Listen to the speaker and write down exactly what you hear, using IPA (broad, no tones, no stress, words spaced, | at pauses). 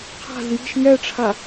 qʰa̤z ji̤ʃ ŋɛʈ͡ʂʰa